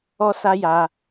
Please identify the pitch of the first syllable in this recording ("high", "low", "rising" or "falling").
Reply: high